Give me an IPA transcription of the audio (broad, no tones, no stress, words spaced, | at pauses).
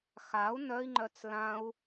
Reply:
xau̯ nœi̯ŋ͡ǃœt͡s lãu̯